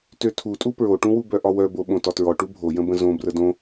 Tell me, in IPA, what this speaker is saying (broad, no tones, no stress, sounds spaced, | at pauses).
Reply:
t ø tʰ u tʼ u p ɹ o ʈ ũ w u b œ ʔ ɒ w œ b o ɓ õ t ɒ t ɹ ɔ ʈ u bʱ o j ə̃ b ə̃ z õ b r ə d õ